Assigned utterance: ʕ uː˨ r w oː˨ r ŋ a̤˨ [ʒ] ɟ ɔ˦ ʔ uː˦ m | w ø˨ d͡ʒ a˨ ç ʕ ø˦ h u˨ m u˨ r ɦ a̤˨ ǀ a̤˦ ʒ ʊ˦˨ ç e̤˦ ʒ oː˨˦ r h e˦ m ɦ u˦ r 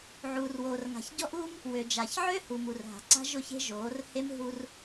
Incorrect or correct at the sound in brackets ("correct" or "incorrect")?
incorrect